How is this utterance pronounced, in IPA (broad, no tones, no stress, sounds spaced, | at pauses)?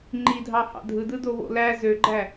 ŋ͡ǃ i dʱ ɑ h ɑ̰ dʱ ɯ d ɯ d o β o̰ l æ z ø ɡ͡ǃ æ